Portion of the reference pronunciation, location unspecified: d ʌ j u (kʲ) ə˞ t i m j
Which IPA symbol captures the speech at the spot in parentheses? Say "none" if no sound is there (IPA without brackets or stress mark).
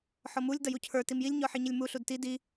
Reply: cʰ